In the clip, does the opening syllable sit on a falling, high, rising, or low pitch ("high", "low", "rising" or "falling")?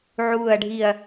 falling